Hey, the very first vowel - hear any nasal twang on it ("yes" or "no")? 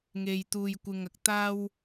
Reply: no